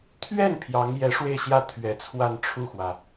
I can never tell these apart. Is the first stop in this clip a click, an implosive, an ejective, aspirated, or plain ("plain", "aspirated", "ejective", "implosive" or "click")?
aspirated